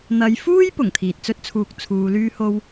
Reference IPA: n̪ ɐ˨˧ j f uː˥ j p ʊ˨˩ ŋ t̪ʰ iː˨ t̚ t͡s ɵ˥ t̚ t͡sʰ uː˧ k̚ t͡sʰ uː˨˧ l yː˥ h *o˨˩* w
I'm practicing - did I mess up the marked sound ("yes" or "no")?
yes